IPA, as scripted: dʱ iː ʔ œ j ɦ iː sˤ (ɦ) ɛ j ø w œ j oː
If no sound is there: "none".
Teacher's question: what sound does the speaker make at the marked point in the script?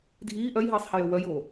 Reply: h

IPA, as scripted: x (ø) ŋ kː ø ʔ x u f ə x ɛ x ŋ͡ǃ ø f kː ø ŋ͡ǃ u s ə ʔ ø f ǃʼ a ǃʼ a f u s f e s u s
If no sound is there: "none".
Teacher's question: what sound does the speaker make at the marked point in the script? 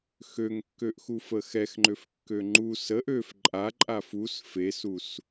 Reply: ø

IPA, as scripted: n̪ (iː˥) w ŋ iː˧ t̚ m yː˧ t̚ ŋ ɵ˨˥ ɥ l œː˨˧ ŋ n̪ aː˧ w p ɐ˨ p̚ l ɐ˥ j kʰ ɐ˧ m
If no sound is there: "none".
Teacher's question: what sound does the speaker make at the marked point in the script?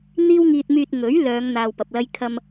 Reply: iː˥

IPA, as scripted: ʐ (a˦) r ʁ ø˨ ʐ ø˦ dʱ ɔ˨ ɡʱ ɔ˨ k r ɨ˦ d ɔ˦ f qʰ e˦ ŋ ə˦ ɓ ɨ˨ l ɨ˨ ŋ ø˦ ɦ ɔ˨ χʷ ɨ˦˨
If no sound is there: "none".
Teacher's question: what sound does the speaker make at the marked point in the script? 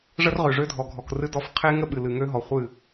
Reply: ə˦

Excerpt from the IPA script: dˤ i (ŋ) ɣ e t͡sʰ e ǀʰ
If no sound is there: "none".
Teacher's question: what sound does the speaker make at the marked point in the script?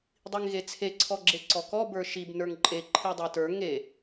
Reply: ŋ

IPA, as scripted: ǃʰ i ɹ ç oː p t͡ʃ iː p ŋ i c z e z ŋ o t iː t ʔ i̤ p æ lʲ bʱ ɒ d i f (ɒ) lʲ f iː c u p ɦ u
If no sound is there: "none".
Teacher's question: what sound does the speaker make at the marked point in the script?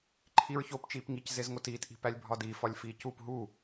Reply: ɒ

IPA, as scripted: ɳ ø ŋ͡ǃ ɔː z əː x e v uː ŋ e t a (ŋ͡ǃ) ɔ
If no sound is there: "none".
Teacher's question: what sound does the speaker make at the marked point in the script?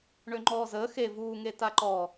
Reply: ǃ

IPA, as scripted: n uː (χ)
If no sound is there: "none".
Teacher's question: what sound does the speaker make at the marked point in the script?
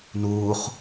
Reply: χ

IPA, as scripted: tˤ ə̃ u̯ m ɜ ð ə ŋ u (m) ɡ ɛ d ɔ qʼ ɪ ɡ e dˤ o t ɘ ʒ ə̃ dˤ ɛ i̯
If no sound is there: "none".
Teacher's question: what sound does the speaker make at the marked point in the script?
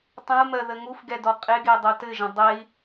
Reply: f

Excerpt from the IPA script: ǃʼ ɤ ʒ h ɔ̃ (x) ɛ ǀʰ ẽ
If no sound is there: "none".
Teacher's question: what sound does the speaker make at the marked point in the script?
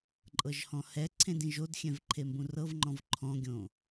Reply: h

